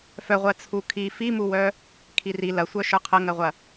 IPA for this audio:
f œ ʁʷ ɜ t͡sʰ u kʰ i f i m u w œ | kʰ i r i l ɐ sʷ œ ʃ ə˞ qʰ ɐ ŋ ɜ ʁʷ ɐ

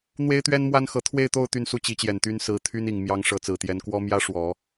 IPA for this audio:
n̪ w e˥ ɪ̯ t̪ ɥ ɛ˥ n m w a˥ n x ɤ˧˥ t̪ʰ w e˥˧ ɪ̯ t̪ o˥˧ ʊ̯ t̪ y˥˧ n s u˥˩ t͡ɕ i˧˥ t͡ɕ j ɛ˨˩ n t̪ y˥ n s ɹ̩˧˥ t̪ʰ y˥ n i˨˩ ŋ m j ɑ˧˥ ŋ ʂ ɤ˧˥ t͡s ɹ̩˨˩ t̪ j ɛ˧˥ n k w ɔ˥ m j ä˥ ʂ w ɔ˨˩˦

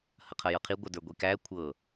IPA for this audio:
h ɐ qʰ ɐ j ɤ qʰ i ɡʷ ɐ d ə˞ ɡʷ i k æ kʷʰ ɤ

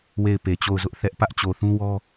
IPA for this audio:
w e˦˨ ɪ̯ p e˨ t͡ɕ o˦˨ ʊ̯ z ʊ˦ ʔ θ ɛ˦ ʔ p ä˦ ʔ t͡ɕ o˨ θ ũ˦ w ɔ˦

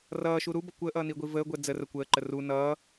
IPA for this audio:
r ʌː ʃ u ɾ u b ʌ kʷ əː ʔ ʌː n i ɡʷ i v əː ɡʷ ɛ d͡z ə r ə kʷ əː ǃ ə r u n ʌː

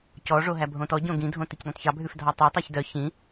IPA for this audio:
c ɔ ʐ o ɦ æ bʱ õ t ɔ ɟ õ ɡ ĩ dʱ õ t i c d ĩ tˤ ç ɑ bʱ ʉ f dʱ ɑ tˤ o tˤ ɑ ç d œ ç ĩ

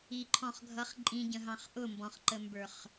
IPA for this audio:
i ǃʰ ɔ̃ χ ɡʱ ʌ χ ǃʼ ĩ ɟ ə̃ ɦ ɑ̃ χ ʔ ʊ m b ɔ̃ χ ǃ ə m b ə˞ χ

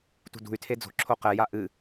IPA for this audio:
t ṳ d ṳ y̯ tʰ e d͡z o̤ ǁʰ o q ɛ j a ʔ ɨ

